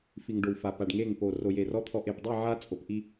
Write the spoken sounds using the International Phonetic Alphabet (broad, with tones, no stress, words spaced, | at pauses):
fi˨ŋɖo˨w fa˨pa˨ɖŋe˦˨ŋpo˨ ro˨je˨rɔ˦ t̪ʰɔ˨ʔe˨pdˤi˦˨ ʕa˦ t͡sʼo˨pʔi˦